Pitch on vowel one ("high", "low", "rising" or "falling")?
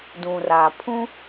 low